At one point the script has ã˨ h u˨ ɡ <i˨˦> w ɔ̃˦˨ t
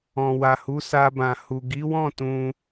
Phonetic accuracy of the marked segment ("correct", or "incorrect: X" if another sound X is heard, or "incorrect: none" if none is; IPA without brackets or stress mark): correct